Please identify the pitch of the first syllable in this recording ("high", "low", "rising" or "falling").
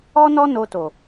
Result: high